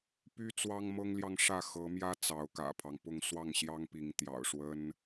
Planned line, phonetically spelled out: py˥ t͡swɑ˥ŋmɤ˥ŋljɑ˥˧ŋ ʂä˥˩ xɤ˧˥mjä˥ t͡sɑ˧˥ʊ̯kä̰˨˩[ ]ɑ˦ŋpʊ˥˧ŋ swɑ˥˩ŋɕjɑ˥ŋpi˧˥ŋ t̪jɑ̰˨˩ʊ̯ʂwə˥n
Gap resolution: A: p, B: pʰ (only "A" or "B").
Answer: B